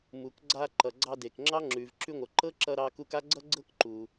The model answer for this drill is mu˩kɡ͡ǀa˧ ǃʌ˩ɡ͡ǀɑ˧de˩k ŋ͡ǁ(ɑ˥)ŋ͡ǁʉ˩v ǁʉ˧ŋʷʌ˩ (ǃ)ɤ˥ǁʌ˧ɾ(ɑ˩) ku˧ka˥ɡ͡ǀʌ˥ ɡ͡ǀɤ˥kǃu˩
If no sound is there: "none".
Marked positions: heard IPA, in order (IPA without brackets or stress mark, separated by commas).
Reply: ɑ˥, ǃ, ɑ˧